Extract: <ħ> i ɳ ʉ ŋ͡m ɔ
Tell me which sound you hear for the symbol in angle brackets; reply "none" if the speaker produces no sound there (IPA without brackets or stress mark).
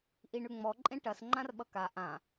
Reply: ʔ